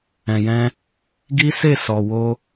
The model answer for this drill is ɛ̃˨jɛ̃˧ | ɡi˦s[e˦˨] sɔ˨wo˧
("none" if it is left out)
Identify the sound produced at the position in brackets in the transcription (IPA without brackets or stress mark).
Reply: e˦˨